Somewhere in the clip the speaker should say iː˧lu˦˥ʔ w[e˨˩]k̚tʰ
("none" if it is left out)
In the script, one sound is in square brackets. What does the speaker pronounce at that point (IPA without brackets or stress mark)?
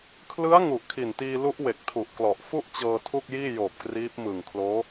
e˨˩